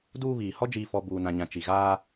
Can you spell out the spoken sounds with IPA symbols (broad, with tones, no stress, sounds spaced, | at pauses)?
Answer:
d uː˦ β iː˨ h ɔ˦ d͡ʒ iː˨ f ɔ˨ b uː˨ n ã˨ ɲ ã˨ t͡ʃ i˨ ɣ aː˦